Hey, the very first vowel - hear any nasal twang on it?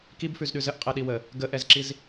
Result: no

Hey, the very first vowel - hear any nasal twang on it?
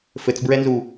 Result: no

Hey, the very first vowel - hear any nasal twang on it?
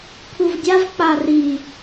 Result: no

